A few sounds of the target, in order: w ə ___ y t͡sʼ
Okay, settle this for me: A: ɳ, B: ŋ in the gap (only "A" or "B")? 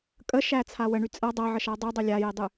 A